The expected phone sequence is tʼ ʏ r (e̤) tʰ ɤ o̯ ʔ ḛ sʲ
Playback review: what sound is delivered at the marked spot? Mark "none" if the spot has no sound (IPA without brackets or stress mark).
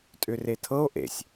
e